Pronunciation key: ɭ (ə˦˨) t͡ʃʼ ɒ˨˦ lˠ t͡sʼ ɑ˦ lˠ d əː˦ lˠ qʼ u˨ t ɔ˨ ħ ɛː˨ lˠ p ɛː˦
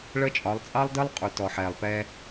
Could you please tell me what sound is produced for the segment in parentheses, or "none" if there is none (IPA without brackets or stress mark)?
ə˦